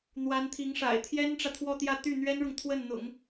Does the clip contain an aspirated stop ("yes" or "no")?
yes